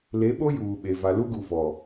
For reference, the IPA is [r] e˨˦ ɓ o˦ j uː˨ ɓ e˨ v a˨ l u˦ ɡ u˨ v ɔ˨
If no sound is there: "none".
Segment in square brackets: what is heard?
l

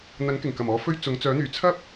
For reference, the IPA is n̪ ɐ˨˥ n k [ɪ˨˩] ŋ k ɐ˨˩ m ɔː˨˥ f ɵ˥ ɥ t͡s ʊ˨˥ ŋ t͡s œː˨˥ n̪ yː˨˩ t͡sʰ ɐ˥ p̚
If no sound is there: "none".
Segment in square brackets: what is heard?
ɪ˨˩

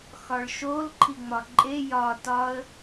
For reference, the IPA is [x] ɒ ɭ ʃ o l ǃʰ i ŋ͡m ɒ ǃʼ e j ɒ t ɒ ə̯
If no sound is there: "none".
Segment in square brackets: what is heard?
x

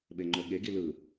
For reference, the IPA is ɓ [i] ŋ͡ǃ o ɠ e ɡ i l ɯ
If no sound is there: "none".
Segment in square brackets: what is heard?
e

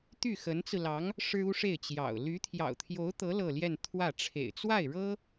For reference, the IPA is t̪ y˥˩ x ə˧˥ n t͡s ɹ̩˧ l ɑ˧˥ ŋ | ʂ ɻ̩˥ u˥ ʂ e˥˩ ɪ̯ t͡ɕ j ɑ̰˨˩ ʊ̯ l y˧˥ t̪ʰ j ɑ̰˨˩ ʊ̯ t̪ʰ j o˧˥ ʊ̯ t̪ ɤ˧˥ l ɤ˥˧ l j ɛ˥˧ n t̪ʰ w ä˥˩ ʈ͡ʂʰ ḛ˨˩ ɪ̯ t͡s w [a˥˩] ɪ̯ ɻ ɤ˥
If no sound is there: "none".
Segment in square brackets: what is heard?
a˥˩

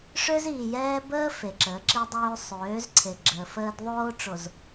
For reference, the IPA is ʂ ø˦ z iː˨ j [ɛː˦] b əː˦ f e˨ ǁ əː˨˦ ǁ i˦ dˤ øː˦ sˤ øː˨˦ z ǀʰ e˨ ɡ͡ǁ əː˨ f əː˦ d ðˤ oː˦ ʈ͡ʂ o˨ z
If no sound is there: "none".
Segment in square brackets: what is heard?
ɛː˦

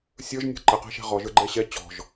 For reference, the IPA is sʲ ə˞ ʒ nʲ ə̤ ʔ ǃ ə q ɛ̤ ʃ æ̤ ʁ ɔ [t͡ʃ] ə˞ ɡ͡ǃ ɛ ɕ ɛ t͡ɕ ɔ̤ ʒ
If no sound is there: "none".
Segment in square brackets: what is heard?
ʒ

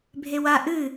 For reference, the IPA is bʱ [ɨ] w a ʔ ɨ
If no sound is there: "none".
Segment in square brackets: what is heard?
e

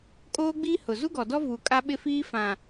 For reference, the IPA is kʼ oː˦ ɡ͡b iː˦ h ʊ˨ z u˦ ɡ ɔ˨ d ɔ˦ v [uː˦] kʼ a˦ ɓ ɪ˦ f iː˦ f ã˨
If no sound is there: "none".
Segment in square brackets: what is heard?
uː˨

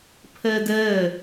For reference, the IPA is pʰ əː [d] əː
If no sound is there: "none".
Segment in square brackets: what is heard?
d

